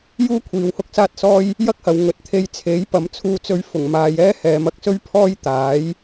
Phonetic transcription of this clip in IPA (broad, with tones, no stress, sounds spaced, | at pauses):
j uː˥ kʷʰ iː˨ w h ʊ˥ k̚ s aː˥ t̚ s ɔː˥ j | j ɐ˥ k̚ h ɐ˨ w ŋ ɵ˨˥ t̚ t̪ʰ e˧ j t͡sʰ e˨˥ j p ɐ˨˧ m t͡sʰ uː˧ t͡s ɵ˧ ɥ f ʊ˨˩ ŋ m aː˨ j ɛː˥ h ɛː˨˧ m ɐ˧ k̚ s ɵ˥ ɥ pʰ ɔː˥ j t̪ aː˨˥ j